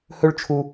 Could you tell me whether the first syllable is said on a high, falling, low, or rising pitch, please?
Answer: high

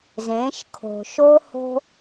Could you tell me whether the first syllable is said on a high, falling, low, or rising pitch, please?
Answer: rising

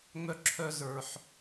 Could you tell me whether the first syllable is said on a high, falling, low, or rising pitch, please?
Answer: high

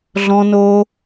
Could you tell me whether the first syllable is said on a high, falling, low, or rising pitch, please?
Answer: low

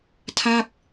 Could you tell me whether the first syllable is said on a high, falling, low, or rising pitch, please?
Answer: falling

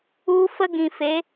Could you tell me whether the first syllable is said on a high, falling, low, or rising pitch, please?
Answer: high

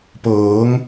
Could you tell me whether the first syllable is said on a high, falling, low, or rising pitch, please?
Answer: rising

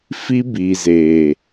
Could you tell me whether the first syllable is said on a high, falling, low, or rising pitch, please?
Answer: high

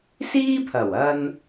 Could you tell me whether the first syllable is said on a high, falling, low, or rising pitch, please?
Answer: high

